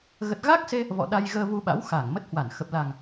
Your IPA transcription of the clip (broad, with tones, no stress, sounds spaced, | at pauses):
ɣ ə˨˩ t̚ ɣ aː˦˥ k̚ s e˧ | v ɔ̰˧˨ ɗ a˧ j ɣ əː˧ v u˧ ɓ a̰˧˥ w x aː˧˩ ŋ m ə˦˥ t̚ h w a˧˩ n x ə˨˩ p̚ l a˨˩ ŋ